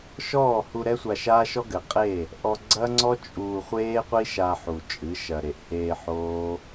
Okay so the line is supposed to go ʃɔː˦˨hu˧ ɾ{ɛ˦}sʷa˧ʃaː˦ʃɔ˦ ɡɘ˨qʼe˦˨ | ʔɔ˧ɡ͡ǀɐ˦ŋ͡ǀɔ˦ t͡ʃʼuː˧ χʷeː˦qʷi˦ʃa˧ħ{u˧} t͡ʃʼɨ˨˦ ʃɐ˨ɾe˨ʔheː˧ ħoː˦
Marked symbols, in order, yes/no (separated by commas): yes, no